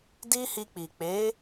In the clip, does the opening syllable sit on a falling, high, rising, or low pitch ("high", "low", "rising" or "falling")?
high